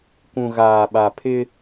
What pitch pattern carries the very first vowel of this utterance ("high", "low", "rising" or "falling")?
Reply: low